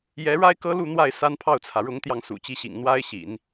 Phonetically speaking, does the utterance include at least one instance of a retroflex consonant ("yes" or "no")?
yes